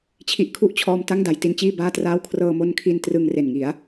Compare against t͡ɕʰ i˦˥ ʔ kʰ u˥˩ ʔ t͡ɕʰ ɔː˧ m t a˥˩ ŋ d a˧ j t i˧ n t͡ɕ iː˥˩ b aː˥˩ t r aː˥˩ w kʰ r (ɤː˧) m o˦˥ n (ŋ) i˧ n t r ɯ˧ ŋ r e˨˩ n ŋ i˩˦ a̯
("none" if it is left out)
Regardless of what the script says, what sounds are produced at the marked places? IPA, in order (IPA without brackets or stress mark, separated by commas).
ɤː˧, kʰ